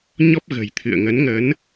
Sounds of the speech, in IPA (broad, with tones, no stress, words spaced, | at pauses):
ɲɔ˦˥p̚ɣə̤˨˩j t̪ʰɨ̰˧˨ə̯ŋə˨˦nŋə˨˦n